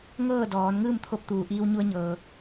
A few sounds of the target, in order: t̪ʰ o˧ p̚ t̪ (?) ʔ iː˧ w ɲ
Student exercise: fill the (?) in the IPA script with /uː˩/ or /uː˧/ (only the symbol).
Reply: uː˩